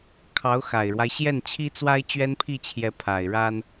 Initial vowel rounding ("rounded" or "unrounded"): unrounded